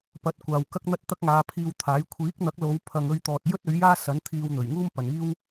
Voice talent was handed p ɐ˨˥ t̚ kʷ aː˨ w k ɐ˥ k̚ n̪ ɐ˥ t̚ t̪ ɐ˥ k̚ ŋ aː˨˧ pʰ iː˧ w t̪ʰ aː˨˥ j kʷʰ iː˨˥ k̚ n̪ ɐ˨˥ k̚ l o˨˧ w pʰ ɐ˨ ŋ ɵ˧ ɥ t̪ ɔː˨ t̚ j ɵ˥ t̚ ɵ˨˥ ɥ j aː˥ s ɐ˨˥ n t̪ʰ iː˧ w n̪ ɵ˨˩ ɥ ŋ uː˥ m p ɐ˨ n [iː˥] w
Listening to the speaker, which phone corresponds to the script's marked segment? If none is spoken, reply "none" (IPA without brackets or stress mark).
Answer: iː˥